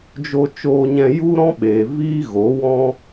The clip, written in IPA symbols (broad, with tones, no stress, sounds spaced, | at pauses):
d͡ʒ o˧ t͡ʃ oː˧ ɲ ɛ̃˧ j u˦ ɾ ɔ̃˦ ɓ eː˨ v iː˦ ɣ o˨˦ w ɔ̃˦